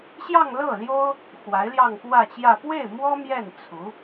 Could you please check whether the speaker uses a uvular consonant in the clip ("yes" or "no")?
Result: no